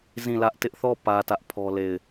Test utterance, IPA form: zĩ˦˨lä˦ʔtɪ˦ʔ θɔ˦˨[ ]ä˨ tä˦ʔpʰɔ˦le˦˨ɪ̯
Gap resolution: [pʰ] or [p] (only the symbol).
p